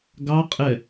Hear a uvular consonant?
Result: yes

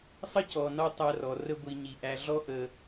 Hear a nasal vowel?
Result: no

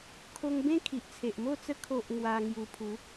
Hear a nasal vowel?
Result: yes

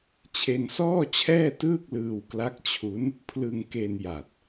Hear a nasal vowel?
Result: no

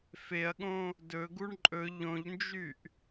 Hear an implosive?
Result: yes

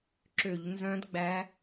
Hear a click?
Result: yes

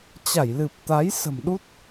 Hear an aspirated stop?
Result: no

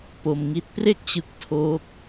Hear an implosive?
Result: no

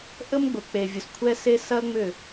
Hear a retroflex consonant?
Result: no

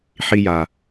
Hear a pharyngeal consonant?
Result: yes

